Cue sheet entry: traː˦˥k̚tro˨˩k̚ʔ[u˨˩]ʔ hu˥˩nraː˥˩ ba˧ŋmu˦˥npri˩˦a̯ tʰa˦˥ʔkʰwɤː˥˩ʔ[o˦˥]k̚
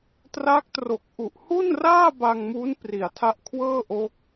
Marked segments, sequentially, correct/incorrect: correct, correct

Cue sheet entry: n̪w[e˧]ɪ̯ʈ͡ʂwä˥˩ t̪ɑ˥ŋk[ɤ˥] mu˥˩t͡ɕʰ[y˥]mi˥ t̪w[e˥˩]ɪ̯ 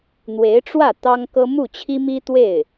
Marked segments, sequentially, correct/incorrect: incorrect, correct, incorrect, correct

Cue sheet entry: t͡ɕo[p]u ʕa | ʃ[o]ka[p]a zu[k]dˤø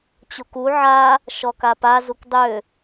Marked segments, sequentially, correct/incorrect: incorrect, incorrect, correct, correct

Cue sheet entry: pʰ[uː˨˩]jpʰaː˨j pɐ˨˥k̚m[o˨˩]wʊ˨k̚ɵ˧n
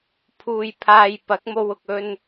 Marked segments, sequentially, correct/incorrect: incorrect, incorrect

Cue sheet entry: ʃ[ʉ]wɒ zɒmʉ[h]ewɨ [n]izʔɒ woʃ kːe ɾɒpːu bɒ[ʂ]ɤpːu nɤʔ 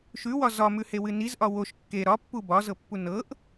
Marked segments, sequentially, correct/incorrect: correct, correct, correct, incorrect

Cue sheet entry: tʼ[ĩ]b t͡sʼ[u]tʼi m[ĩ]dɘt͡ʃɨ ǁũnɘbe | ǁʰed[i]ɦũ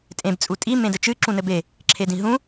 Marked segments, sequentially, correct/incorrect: incorrect, correct, incorrect, incorrect

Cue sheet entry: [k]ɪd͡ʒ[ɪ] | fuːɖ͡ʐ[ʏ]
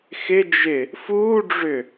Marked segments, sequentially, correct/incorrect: incorrect, correct, correct

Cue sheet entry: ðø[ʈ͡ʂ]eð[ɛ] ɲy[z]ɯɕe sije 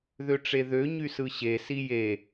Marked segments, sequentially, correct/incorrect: correct, incorrect, incorrect

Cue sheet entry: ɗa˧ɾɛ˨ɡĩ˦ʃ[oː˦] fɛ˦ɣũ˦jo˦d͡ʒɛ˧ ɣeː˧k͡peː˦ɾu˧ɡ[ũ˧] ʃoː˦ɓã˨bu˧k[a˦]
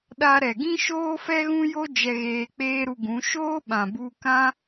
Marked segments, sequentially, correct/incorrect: correct, incorrect, incorrect

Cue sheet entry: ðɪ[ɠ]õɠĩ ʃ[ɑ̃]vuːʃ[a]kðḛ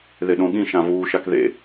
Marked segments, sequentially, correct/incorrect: incorrect, incorrect, correct

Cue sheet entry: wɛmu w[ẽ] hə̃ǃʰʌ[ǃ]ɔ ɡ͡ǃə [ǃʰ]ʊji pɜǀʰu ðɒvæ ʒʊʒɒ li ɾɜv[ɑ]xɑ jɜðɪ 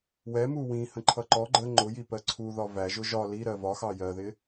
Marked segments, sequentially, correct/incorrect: incorrect, correct, incorrect, incorrect

